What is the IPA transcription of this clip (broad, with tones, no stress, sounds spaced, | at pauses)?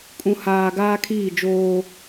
kʼ ũ˨ h aː˨ ɡ aː˦ kʰ iː˦˨ d͡ʒ oː˦